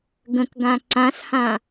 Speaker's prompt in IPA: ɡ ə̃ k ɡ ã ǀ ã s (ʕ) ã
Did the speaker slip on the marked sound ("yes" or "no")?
yes